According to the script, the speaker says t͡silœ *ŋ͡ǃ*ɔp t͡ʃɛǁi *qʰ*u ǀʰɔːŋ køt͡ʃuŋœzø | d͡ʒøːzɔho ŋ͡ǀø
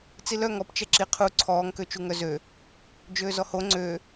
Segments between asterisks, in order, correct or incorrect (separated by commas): incorrect, correct